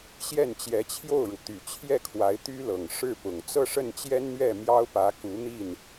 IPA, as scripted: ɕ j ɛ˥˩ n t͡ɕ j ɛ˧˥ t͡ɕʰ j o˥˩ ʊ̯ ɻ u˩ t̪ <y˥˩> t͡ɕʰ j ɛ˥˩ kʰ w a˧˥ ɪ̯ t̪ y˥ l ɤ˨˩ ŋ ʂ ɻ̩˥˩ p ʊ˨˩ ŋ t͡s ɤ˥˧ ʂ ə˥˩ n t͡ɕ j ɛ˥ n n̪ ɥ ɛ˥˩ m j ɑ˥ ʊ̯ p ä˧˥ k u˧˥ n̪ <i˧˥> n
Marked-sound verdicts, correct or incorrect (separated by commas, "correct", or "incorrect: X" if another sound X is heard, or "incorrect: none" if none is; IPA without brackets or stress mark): incorrect: y˨˩, incorrect: i˥˩